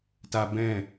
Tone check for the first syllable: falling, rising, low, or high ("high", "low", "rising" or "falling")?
high